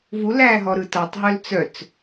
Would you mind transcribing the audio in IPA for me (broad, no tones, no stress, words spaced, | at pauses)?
vulæːɦɔɾɯ tatˤɦœl t͡sœt͡s